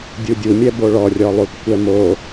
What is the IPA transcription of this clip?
dʲ u dʲ u mʲ ɛ b o ɭ ɔ rʲ ɔ lˠ u t kʷ ɛ m o

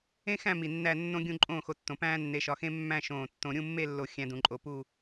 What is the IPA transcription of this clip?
ẽ˥ x æ̃˥˧ m i˧˩ nː æ˥˧ nː õ˥ ɡʲ ũ˥˧ ǃʼ õː˥˧ x o˧ tː õ˩˧ p æ̃ː˥ nː e˧ ʃ ɒ˧ x ẽ˥ mː æ̃˥˧ ʃ õː˧˩ tː õ˧ ɾʲ ũ˥˧ mː e˥˧ lː o˧˩ xʲ æ̃˧ d ũ˩˧ ǃʼ o˧ p u˥˧

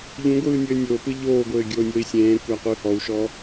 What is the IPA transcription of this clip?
ʎ ũ ɡʷ ɯː nʲ ɘː nʲ o p ɯ ʎ oː ɡʷ ɘː ɡʲ oː nʲ o i̯ sʲ ẽː kʷ æ qʷ ɯː h ɔ u̯ ʃ ɔ

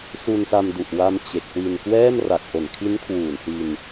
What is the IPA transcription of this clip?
s u˧ n s a˧ m d u˨˩ ʔ w a˧ m t͡ɕ e˨˩ k̚ w i˧ n k w ɛː˥˩ m r a˨˩ k̚ ʔ o˨˩ n kʰ i˦˥ n kʰ w uː˨˩ n s i˧ n

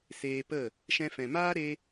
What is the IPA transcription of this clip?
s eː˧ p ə˦˨ | ʃ ɛ̃˧ f ɛ̃˨ m aː˦ ɾ e˦

